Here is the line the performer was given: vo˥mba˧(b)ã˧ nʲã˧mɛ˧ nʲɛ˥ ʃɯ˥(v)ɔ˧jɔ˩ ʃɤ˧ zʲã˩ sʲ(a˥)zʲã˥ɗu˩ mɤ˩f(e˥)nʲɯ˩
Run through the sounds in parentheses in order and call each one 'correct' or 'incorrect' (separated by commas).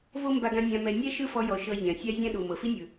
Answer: incorrect, incorrect, correct, incorrect